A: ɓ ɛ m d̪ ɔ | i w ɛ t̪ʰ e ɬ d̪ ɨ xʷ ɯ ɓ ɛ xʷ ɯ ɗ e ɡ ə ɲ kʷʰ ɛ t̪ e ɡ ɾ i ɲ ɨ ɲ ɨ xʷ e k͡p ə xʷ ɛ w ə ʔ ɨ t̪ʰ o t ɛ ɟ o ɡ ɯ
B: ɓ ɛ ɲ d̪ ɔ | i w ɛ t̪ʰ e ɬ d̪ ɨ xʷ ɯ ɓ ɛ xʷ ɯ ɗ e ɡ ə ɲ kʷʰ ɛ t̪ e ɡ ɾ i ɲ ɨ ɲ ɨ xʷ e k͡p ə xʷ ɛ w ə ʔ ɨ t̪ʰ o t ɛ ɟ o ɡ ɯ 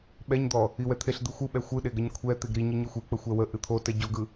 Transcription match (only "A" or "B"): B